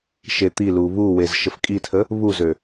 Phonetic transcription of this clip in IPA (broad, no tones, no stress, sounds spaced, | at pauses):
ʃ e t̪ i l u β u w e z ʃ ə f kʼ i tʰ ə | β u z ø